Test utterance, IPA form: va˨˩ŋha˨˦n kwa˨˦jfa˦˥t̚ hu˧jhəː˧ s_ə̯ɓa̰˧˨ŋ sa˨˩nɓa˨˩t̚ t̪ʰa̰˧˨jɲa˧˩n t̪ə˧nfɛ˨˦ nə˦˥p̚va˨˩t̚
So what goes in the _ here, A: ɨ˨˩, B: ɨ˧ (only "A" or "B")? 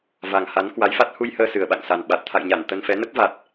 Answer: A